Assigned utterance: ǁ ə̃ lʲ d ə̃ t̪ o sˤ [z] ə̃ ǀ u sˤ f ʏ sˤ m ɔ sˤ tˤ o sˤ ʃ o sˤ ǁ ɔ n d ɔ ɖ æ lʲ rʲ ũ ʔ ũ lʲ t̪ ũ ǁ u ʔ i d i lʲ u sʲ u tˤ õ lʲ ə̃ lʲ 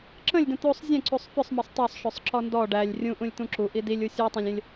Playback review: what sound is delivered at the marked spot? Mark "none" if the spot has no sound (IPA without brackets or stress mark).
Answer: zʲ